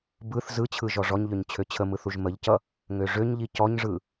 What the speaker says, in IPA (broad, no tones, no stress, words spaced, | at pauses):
bɯθ zɯt͡ɕʰɯ ʒɔʐɔɲʎøɲ t͡ɕʰøt͡ɕʰəmɯθ uʒməʎcʌ | ŋøʐøɲʎi cɔɲʐɯ